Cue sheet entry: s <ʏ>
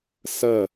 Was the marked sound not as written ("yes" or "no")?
yes